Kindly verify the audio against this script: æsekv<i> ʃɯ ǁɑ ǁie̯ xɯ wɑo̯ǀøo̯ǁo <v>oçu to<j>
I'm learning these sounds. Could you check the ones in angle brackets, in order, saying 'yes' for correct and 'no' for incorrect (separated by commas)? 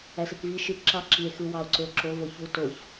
yes, yes, no